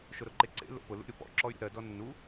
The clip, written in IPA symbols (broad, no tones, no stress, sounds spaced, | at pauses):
ʃ ʊ ɾ ʊ ǃ e ǀ ḛ l o̰ p ʊ l ṵ ɾʲ ʊ p ɔ̰ ǁ ɔ y̯ ɾʲ o̰ ɾ ɜ d ɔ nː u